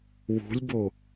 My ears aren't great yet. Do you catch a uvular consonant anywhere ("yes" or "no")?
no